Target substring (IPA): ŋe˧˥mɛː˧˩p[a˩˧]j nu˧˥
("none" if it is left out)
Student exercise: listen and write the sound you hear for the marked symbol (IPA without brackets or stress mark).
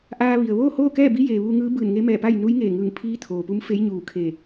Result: a˥˨